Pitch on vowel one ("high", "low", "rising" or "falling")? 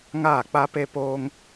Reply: falling